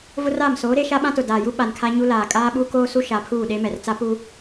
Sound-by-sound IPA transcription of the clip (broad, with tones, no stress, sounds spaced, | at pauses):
v ʊ˦ r a˦˨ m s oː˨˦ ɾ e˦ ʃ a˦ ɓ ã˦ t ʊ˨ d aː˨ j u˦ ɓ a˨ n kʰ a˦ ɲ u˦ l aː˨ kʼ aː˦ ɓ u˦ k oː˦ s u˦ ʃ a˨˦ pʰ uː˦˨ ɗ e˦ m ɛ˨ r t͡s a˦ p u˦